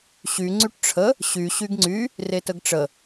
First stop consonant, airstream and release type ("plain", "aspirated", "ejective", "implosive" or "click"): click